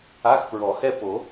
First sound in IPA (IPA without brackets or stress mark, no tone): a